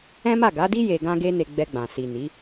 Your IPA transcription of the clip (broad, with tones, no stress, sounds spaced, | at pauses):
ɛ̃˦ m a˦˨ ɡ a˨˦ d i˦ j e˧ ɡ ã˦ ɡ e˦ n e˧ ɡ͡b ɛ˧ ɡ͡b ã˨ s i˨ n i˨˦